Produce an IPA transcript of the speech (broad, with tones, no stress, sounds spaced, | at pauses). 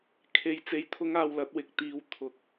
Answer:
kʰ e˧ j t͡s e˧ j t̪ʰ ʊ˥ ŋ aː˧ w l ɐ˨˥ t̚ w ɪ˨ k̚ t̪ iː˧ w t̪ʰ ʊ˧ k̚